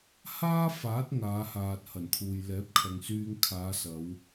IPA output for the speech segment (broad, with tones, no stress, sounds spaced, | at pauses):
h aː˥ f aː˨˥ t̚ ŋ aː˨˧ h aː˨ t̚ h ɐ˨˩ n t̪ʰ uː˨ j l ɛː˨˥ p̚ kʰ ɐ˨ ŋ s yː˧ ŋ kʰ aː˨˧ s ɐ˨˧ w